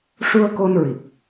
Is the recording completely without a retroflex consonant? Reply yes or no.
no